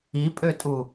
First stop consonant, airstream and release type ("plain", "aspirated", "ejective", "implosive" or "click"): ejective